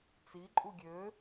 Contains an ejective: yes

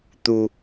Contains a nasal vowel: no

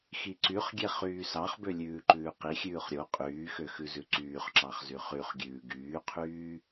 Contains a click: yes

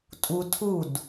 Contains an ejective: yes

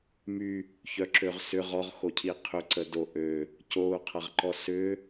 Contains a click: yes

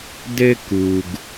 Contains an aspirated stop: no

